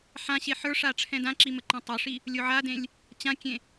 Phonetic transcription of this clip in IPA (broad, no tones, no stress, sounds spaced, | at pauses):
ħ ã ɕ e ħ ə˞ ʂ a ʈ͡ʂʰ ɛ̃ d ã ǁ i m ə ǃ ã tˤ ə˞ ʂ i | lʲ o ʕ a d ẽ lʲ | t͡ɕ ã kʲ ẽ